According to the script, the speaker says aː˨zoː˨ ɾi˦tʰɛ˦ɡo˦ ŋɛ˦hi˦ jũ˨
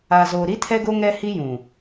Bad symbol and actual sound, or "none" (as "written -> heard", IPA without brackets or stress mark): none